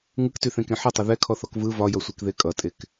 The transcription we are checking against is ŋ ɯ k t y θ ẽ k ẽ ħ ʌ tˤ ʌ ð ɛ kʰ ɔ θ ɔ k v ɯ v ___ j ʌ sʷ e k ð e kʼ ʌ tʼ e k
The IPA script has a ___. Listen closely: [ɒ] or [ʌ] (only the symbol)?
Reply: ɒ